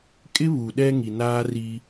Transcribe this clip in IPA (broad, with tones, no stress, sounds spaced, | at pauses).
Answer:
kʼ ɪ˦ β u˨ ɗ ɛ˦ ŋ i˨ n aː˦ r i˦